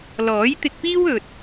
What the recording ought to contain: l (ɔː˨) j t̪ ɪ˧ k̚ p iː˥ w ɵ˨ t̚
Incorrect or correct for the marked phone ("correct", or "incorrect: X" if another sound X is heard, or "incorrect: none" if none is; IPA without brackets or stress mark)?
incorrect: ɔː˨˥